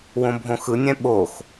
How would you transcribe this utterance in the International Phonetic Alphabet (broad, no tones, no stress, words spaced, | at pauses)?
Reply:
wõbʱõxɯnʲɛ̃ ɓox